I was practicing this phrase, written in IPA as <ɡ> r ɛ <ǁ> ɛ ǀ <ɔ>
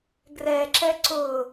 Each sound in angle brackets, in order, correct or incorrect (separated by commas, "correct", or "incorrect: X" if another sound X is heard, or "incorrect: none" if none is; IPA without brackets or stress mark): correct, correct, incorrect: ʊ